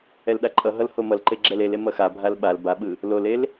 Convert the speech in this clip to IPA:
ɛ l ɗ a ǃʼ ʌ ɦ ʌ l h o m ʌ l ǃ e ɡ͡ǁ ɛ l e l e m ʌ x a bʱ a l ɓ a l b a ɓ ɯ | l o l e l

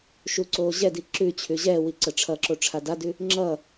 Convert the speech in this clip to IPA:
ʃ u ǀ oː ʑ ɛ d i ǁ ʉ t͡ɕʰ ʉ ʑ ɛː w i ǀ ə ʈ͡ʂʰ ʌ ǁ o ʈ͡ʂʰ a d a d ʉ | ŋ͡ǁ ʌ

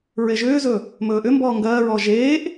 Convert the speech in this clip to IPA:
ɹ e ʒ ʏː z ɵ | m ɵː ʔ ʏ m b ɔː ŋ ɡ ɜː ɹ ɔː ʒ eː ʔ

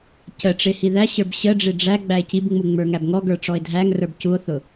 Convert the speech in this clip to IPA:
c ə ʈ͡ʂ ɪ h i ð æ ɕ ə˞ b ɕ ə ɖ͡ʐ ɪ ɖ͡ʐ æ ɡ͡b æ e̯ c i b ŋ͡m u ŋ͡m ə˞ ŋ æ b ŋ ɔ ɡ ə˞ ʈ͡ʂ ɔ e̯ dʱ æ ŋ r ə˞ b c u o̯ θ ʊ

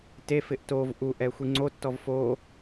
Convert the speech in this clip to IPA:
t e f ɪ ʔ t o v ʔ u ʔ ɛ xʷ i ŋ͡ǀ o tː ɔ v f o

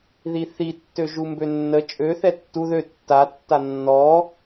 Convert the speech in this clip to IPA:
ð i θ i tː ø ʒ u m b ø nː ə t͡ʃʼ ø θ ɛ tː u ð ø tː a tː a nː ɔ

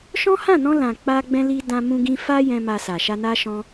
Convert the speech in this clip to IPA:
ʃ ɔ̃˦ h ã˦˨ n ɔ̃˧ l ã˨ k͡p a˧ ɡ͡b ɛ̃˧ l i˧ d ã˧ m ũ˧ ɡ ĩ˧ f a˦ j ɛ̃˧ m a˧ s a˨ ʃ a˧ n a˦ ʃ ɔ̃˦

